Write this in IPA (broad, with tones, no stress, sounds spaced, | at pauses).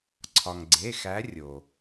ǀʰ ɒ˩ ŋ ɡ͡ǀ e˩˧˩ x æ˨˦ rʲ o˩